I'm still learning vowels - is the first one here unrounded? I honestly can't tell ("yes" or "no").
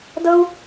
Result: yes